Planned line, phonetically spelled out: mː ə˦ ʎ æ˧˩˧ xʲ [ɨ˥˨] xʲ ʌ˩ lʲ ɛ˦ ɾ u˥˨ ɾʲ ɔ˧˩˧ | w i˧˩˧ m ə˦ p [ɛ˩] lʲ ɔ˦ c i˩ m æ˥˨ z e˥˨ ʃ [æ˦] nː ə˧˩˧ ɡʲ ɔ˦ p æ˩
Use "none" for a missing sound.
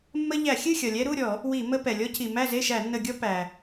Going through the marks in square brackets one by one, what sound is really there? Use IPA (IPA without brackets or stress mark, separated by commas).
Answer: ɨ˥˨, ɛ˩, æ˧˩˧